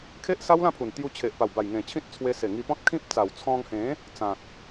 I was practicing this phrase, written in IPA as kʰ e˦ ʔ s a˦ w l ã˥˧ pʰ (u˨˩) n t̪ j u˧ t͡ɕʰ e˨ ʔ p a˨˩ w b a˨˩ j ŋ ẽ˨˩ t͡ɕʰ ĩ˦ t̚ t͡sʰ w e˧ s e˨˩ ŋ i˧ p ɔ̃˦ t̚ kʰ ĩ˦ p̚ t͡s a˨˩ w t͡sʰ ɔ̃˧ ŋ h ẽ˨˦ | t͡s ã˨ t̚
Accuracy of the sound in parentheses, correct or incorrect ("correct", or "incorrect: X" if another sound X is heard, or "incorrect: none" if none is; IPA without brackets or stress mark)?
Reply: correct